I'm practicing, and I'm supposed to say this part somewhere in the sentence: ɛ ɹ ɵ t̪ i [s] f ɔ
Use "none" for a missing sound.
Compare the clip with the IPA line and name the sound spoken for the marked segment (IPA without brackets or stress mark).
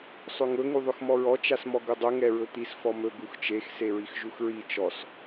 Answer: s